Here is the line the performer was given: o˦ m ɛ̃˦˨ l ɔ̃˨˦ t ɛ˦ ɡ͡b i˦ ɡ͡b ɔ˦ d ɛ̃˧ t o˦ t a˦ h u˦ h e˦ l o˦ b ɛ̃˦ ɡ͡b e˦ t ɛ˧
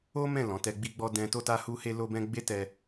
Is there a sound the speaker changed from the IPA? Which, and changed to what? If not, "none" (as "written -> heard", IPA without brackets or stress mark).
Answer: none